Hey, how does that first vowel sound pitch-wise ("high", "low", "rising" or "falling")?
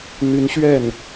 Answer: rising